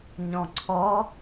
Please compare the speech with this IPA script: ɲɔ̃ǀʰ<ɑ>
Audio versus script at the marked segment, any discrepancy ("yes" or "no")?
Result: yes